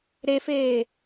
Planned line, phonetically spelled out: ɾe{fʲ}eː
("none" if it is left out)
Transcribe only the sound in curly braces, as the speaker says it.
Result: f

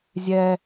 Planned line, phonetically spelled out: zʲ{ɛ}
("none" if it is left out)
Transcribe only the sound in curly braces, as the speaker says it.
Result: ɛ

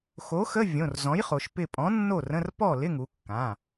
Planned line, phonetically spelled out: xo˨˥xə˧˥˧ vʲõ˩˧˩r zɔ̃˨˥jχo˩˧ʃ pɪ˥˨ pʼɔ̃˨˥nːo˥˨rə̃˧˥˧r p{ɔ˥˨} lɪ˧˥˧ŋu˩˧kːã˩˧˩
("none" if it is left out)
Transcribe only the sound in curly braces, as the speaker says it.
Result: ɔ˥˨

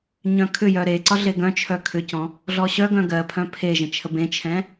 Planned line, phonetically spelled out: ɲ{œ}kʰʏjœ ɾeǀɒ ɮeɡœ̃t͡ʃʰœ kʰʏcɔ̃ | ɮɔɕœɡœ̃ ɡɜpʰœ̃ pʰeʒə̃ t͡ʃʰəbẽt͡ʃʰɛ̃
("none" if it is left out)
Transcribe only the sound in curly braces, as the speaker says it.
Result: œ̃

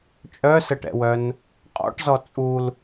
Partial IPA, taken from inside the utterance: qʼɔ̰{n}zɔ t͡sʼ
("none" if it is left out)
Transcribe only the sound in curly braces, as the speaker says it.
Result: ʈ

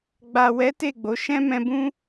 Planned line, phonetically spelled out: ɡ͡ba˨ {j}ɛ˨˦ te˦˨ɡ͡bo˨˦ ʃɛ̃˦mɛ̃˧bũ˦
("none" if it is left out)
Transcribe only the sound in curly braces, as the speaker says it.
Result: w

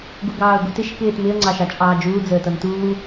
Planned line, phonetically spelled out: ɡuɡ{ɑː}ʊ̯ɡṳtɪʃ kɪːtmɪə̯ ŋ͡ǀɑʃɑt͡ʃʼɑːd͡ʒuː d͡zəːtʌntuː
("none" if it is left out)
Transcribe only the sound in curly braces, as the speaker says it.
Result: ɑː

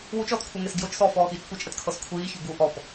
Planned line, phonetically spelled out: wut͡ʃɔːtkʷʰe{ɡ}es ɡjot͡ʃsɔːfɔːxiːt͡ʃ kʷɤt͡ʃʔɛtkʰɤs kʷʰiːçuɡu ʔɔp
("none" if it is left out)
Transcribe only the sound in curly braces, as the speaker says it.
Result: ŋ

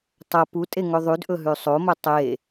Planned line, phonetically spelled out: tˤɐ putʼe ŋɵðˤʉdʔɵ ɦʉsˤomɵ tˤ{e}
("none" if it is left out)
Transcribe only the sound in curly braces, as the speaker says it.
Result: e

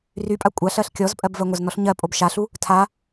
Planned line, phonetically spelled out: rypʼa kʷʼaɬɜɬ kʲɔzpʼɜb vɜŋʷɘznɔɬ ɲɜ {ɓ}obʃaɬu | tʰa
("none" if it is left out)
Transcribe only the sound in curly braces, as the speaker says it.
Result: pʼ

